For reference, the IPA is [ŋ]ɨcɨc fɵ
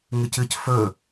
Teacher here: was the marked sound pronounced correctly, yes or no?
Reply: yes